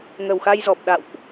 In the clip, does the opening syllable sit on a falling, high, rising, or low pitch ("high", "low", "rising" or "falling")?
low